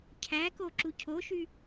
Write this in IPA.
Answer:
cʰ æ k o ǁ u cʰ o ʃ y

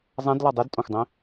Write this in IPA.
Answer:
zˤ ã d l ɔ dˤ i d tʼ õ xʷ dˤ ĩ

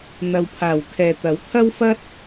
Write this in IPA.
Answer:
n̪ ɐ˨ w pʰ aː˨˩ w kʰ ɛː˨ t̪ ɐ˨˥ w t̪ʰ ɐ˥ w f ɐ˥ t̚

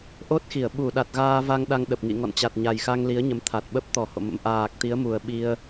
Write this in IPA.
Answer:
ʔ o˦˥ t̚ x i˧˩ ə̯ ɓ u˧˩ ɗ a˨˩ t̚ ɣ aː˧ v a˧ ŋ ɗ a˧ ŋ ɗ ə˨˩ p̚ ŋ ḭ˧˨ ŋ ɔ̰˧˨ n t͡ɕ a˨˩ t̚ ɲ a˨˩ j x a˧ ŋ l i˨˦ ə̯ ɲ ə˨˦ m t̪ʰ a˨˩ t̚ ɓ ə˦˥ p̚ t̪ ɔ˨˩ h o̰˧˨ m ə̰˧˥ m ʔ aː˨˩ k̚ t̪ i˨˦ ə̯ m u˨˩ ə̯ ɓ i˧ ə̯

